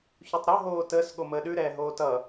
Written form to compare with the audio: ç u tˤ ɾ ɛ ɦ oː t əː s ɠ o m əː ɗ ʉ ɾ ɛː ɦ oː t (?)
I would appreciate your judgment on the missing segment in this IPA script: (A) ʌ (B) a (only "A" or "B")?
A